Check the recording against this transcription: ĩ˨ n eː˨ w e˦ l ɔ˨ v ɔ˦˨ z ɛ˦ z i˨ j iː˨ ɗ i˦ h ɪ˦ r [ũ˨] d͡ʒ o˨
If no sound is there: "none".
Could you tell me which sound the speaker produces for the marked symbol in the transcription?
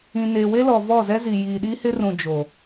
ũ˨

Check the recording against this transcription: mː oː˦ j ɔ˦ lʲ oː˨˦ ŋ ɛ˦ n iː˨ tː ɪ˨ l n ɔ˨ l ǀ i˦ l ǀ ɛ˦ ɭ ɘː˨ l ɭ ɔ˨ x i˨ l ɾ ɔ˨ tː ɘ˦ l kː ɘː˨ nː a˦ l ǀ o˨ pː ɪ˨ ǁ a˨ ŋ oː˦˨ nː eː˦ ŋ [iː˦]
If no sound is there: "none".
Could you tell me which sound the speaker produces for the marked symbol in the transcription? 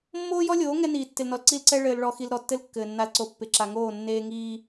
iː˦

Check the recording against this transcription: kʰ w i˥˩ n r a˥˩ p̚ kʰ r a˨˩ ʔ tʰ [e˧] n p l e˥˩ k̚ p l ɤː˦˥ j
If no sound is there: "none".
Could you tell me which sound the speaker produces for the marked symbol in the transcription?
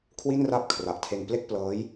e˧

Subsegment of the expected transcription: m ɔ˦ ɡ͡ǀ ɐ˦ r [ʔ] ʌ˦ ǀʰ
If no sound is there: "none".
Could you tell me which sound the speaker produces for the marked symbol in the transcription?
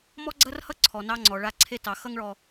h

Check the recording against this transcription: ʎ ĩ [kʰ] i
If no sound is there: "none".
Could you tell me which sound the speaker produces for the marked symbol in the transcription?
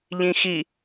x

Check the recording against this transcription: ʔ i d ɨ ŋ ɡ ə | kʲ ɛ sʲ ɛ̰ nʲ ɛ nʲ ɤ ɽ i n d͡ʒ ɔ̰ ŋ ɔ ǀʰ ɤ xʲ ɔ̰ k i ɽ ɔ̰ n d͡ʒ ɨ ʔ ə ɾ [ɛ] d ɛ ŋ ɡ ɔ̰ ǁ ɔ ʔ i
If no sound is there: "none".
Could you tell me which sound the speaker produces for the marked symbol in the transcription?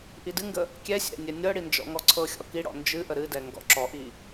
ɨ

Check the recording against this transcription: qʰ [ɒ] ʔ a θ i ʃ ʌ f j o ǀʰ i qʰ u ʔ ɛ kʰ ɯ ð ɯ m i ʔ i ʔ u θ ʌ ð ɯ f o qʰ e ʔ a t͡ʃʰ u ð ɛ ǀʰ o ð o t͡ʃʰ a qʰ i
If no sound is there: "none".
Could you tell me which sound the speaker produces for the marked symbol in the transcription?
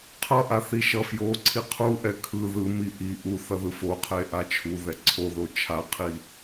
ʌ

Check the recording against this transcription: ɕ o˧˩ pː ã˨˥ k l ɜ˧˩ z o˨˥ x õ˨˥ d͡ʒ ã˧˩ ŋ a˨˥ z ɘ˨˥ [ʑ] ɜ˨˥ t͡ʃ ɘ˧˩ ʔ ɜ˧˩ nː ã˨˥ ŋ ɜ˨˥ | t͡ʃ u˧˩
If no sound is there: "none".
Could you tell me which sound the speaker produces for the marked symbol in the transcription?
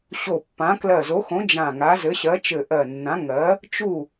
ɕ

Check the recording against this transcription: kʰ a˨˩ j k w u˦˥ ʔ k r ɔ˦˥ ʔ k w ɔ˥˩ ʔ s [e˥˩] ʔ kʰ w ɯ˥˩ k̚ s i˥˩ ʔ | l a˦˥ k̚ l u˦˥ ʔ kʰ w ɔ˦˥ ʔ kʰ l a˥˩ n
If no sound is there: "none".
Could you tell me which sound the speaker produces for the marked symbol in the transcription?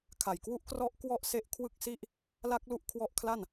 e˦˥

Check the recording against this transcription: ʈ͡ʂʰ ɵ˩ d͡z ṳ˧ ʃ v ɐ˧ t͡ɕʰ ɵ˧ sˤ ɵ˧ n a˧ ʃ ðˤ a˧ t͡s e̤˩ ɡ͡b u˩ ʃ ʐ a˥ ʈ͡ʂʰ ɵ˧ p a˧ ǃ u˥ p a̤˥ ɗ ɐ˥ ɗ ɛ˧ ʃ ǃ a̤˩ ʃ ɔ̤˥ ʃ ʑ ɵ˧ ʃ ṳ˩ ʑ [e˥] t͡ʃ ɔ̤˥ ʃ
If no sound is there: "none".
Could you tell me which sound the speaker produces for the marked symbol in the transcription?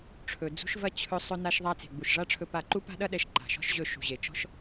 e˩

